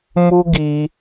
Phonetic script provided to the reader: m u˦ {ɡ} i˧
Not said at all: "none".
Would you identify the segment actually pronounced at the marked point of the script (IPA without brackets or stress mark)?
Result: ɡ